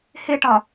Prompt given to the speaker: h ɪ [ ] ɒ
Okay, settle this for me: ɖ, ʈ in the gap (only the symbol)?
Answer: ʈ